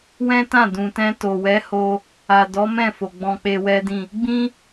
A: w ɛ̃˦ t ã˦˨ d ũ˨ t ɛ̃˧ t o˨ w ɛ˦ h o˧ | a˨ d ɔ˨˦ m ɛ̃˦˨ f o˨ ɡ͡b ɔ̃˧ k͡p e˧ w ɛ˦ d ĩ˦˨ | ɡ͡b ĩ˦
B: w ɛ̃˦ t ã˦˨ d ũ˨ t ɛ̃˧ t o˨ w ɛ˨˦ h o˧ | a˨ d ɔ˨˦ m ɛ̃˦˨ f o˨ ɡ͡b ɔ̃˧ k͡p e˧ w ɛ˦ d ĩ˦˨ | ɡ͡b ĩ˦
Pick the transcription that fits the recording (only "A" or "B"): B